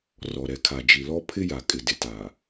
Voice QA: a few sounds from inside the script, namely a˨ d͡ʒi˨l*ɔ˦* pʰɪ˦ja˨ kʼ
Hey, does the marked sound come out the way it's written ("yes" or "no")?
yes